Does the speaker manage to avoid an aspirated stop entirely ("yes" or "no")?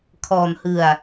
no